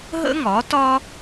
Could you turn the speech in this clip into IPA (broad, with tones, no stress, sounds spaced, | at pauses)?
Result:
ɦ ə̰˥ ŋ ɒ˩˥ t ɒ˥